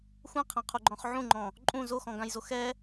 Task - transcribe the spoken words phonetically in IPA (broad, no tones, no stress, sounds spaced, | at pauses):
xʷ ɛ̃ qʰ ã qʰ u ɡ͡ǃ ɔ̃ χ ʕ ũ ŋ͡ǃ ɔ̃ | ǃʼ ũ z o x ɔ̃ ɡ ã j z o x ɛ